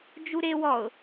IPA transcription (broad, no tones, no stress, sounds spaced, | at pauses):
d͡ʒ u ɾ e w ɔ ʊ̯